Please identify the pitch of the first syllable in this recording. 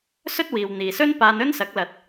high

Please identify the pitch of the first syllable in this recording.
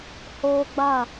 high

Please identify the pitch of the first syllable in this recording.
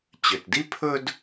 low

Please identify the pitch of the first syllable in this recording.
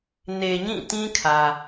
low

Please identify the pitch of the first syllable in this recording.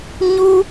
high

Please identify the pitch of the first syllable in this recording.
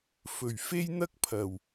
low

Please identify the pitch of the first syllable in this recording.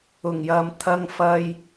low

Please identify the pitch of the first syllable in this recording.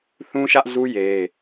high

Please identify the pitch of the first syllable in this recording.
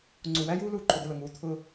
low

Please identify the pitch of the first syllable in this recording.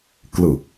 low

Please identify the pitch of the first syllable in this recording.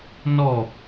falling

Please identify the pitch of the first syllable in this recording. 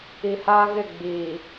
low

